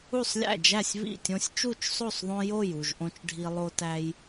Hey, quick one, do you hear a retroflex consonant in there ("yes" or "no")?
yes